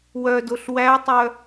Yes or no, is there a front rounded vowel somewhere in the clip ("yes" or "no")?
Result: yes